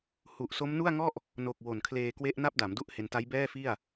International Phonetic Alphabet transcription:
hu˨˩ʔso˦˥m nu˥˩a̯ŋɔ˥˩ʔ | no˨˩k̚ wo˨˩nkʰleː˧kwe˦˥ʔ na˥˩p̚da˩˦m du˥˩ʔhe˧n ta˦˥jbɛː˥˩fi˥˩a̯

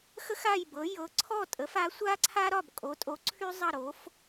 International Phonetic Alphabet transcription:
xə˥x a˥˨jbɤ˩˥ jɤ˩˥ǀʰɔ˥˨ tʼə˩˥f a˩˥sʷa˥ǀʰa˥ ɾɒ˥˨bkʼo˩˥tʼo˩˥ǀʰy˥ zˤʌ˥˨ɾo˩˥f

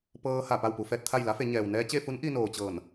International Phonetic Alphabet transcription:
pɤː˧ha˧˩ pa˥˨wpu˧fɛː˧t̚t̪ʰa˥˨j la˧˥fe˩˧ɲɛː˩w nɛː˧t͡ɕe˥˨fu˧˥n ʔi˧noː˩t͡ɕɤː˧˩n

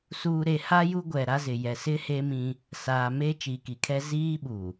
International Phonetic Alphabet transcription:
suː˨ ɾe˨ha˦ ju˦ɡʷɛ˨ɾa˦zɪ˨ jɛ˨sɪ˦ heː˦mĩ˦ | saː˨ meː˦t͡ʃiː˨ki˨kʰɛ˦ ziː˦ɓuː˨

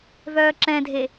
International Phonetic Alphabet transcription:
vœːǁɛ̃dʱe

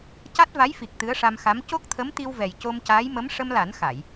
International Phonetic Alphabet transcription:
ca˦˥t̚va˧˥jfi˨˩k̚ t̪ɨ˧˥ə̯ʂa˧mxa˧˥m co˦˥k̚t̪ʰə˧˥mt̪i˧wvɛ˨˩j co˧mcaː˧˥j mə˧˥m ʂə˧mla˨˩˦n xa˨˩˨j

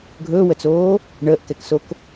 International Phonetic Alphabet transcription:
ɡʱɵːwət͡soː | ɳəːʔkɛksok

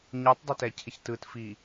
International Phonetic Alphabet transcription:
ɲɯtˤdˤɛtɛcʰɪç tɯtfi

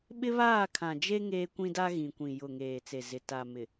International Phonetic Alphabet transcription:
ɓɪ˦βaː˦˨kʰã˨d͡ʒe˦ ŋeː˦kʷĩ˦da˦ ɣĩ˨kʷĩ˨ jʊ˨ ŋeː˨t͡se˨zɪ˨ ta˨mɪ˨

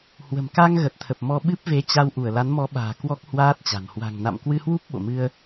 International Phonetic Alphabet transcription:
hwə̤˨˩mka˧ŋ ɣə˨˩t̚t̪ʰə˨˩p̚mɔ˧ ɓɨ˦˥p̚ve˨˦t͡ɕa˧w ʔu˧˩ə̯la˨˦nmɔ˨˦ɓa̤ː˨˩ kwɔ˦˥k̚hwaː˦˥t̚t͡ɕa̤˨˩n hwa̤˨˩ŋna̰˧˨mkwɨ˧hwu˦˥p̚ ɓo̰˧˨mɨ˧ə̯

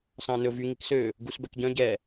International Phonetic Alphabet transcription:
sɑ̃nɵ vy ŋiksø | ɡusbɛkɟœ̃ ɟɛ

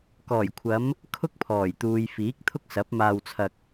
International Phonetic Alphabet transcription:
kɔː˨˩jkʷʰɐ˨˧m | kʰʊ˥k̚pʰɔː˨˩jt̪uː˨j fiː˨˥k̚t̪ʰʊ˥k̚sɐ˨˥p̚ maː˧wt͡sʰɐ˧k̚

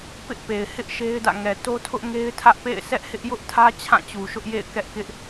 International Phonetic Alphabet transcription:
pɪ˦ʔpe˨ɪ̯hɪ˦ʔ ʃe˦ɪ̯dä̰˦˨ ŋɛ˨to˦tʰʊ˦ʔ ŋe˦ɪ̯tʰä˦ʔpḛ˦˨ɪ̯sɛ˦ʔ hɪ˦ʔjʊ˦ʔtʰä˦ t͡ɕʰã˦˨t͡ɕu˨ʃʊ˦ʔjḛ˦˨ɪ̯ kɛ˦ʔkɪ˦ʔ

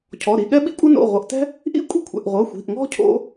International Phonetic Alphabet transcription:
cʰɔ˩˧˩ɾi˩˧˩ ɠɛ˥ɓḭ˥kʷʼɤ˥no̰˩˧˩ ʁʷɤ˩˧˩ʔ tɛ̤˥ | ʔḭ˥kʷʼi̤˥kʷʰɛ̰˩˧˩ʔ ʁʷɤ˩˧˩xʷi̤˩˧˩ʔŋɔ̤˥ cʰo̰˥

